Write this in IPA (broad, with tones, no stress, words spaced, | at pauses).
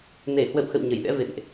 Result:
ne˧˩hwə̰˧˨wxə̰˧˨w ɲə˧˩jɗɛ̰˧˥vḛ˧˨nʔ